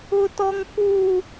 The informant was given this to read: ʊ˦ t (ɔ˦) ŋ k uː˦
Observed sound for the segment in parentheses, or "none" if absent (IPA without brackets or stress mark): ɔ˦